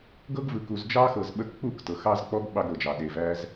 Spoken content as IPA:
ɡ ɤ˦ ɡ v ɯ˨ k u˨ z d͡ʒ ɑ˦ x ɤ˨ z ɓ ə˦ k k͡p u˦˨ k t ɤ˨ x ɑ˦ z k͡p ɔ˦ ɡ ɓ ɑ˦ ɡ ɾ ɤ˨ d͡ʒ ɑ˨ ɗ e˨ v æ˦ z

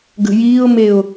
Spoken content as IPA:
ɡ ə̤ j iː ʊ̯ m e ʊ̯

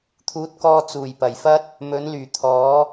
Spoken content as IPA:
t̪ʰ uː˨˥ t̚ k ɔː˧ t͡s uː˨˩ j p ɐ˨˩ j f ɐ˥ t̚ | m ɵ˨˥ n l yː˨˩ t̪ʰ ɔː˨˥

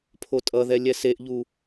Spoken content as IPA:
pʰ o tʼ ʌ ð ɛ lʲ ɛ s e ʔ ʎ u

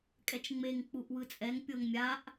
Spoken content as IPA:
kʼ ɛ t͡ʃ ŋ͡m e ŋ k͡p u ʔ w ɯ t͡sʼ ɛ ŋ pʲ ɤ ŋ mʲ a ʔ

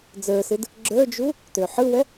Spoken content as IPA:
d͡z ə˞ s ɯ d | ɡ͡ǁ ə˞ d͡ʒ u | t ø ħ ɯ w ɛ

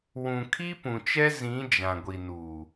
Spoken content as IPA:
w ũ˨ kʰ i˦ p ũ˨ t͡ʃ ɛ˦ z ĩ˨˦ d͡ʒ ã˨ ɡʷ i˨ n u˨

